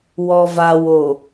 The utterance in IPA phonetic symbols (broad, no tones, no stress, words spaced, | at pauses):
wɔvawo